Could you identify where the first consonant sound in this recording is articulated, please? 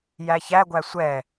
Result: palatal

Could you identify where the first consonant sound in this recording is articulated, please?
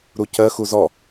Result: alveolar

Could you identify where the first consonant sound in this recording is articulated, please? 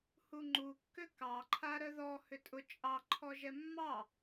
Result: glottal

